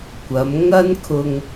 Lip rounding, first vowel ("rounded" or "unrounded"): unrounded